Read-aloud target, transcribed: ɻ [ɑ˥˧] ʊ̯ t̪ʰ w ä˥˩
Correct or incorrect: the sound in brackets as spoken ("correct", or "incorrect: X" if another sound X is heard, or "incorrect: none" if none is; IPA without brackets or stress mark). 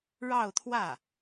correct